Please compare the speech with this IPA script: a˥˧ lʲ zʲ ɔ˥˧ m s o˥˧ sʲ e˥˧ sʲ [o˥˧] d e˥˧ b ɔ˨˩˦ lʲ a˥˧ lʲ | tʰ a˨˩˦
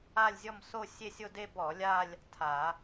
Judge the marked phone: correct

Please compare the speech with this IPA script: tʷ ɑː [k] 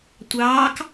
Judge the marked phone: correct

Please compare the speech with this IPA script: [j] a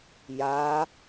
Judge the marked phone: correct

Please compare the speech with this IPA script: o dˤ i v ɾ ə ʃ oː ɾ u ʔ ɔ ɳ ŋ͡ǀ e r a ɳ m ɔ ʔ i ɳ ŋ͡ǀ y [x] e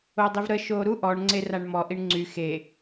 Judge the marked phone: correct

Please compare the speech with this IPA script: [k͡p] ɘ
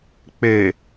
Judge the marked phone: correct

